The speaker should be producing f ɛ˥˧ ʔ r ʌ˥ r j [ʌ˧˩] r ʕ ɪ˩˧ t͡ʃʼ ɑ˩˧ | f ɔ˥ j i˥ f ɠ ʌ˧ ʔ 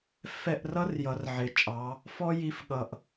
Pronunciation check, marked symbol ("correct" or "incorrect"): incorrect